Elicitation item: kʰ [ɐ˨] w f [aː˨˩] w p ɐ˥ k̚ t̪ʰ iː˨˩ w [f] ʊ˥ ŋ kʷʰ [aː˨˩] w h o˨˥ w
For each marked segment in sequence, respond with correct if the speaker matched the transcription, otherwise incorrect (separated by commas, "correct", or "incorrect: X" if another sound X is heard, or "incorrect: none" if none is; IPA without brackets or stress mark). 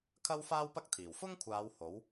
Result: incorrect: ɐ˥, incorrect: aː˥, correct, incorrect: aː˨˧